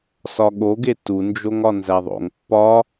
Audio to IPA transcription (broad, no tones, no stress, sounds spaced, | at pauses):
s ɒ ɠ o ɡ e t u n d͡ʒ o ŋ ɒ n z æ ðˤ o̰ ŋ pː ɒ